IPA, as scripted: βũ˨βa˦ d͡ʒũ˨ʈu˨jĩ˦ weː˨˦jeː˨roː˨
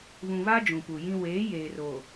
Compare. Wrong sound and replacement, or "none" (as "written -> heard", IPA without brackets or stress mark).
ʈ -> p